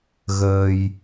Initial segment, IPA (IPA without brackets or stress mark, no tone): ɣ